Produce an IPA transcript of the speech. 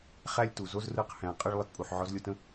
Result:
χ æ˦ lʲ t u˨ z o˦ z r ɯ˦ q h æ̃˨ qʼ ə˦ ɭ lˠ ɪ˨ t pʼ u˨ ħ ʕ ɔ˧ z lʲ o˧ t ə̃˧

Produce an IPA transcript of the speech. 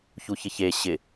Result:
ç u ç ɪ ç e ɕ ɪ

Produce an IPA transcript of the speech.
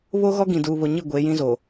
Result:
β o˦ ɣ ɔ˦ ɡ ĩ˨ d uː˨ β o˨ ɲ i˦˨ ɡʷ eː˨˦ j ĩ˦ z oː˨

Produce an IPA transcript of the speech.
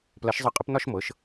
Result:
p l ɐ˩˥ ʃ zˤ ɤ˧ qʼ ə˩˥ p n ɒ˥˧ ʃ m ɤ˩˥ ʃ

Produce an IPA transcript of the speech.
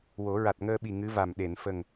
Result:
w o˨˩˦ ɹ a˨˩ t̚ ŋ əː˧ ɓ i˨˩ ŋ ɨ˧˥ v a˨˩ m ɗ e˨˩˨ n f ə˨˩ ŋ

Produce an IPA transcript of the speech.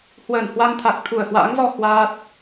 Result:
h w əː˧˩ n h w a˧ ŋ t̪ʰ a˨˩ k̚ t̪ʰ u˧˩ ə̯ h w a̰ː˧˥ ŋ z ɔ˧ h w aː˦˥ t̚

